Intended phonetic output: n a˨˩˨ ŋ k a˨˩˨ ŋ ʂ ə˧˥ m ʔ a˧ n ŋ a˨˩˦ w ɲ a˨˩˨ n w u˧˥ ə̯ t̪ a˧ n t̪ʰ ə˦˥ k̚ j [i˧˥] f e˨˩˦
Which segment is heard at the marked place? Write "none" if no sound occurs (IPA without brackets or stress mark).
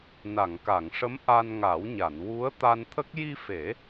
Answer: i˧